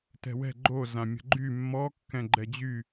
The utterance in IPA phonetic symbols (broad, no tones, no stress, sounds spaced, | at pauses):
t ɛ̤ w ɛ̤ ɡ͡ǃ o z ã mʲ ə̤ ɡ͡ǃ y mː ɔ kː ɛ̃ ɡ͡ǃ ɛ d͡ʑ y